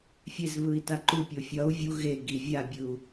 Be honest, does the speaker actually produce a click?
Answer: yes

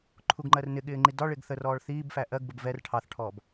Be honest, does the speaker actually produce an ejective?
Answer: no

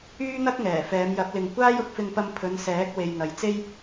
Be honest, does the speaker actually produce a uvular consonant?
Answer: no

